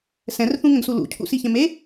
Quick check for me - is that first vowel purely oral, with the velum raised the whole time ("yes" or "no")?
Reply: no